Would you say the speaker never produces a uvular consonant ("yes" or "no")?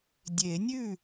yes